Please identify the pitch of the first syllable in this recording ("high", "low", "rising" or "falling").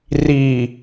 low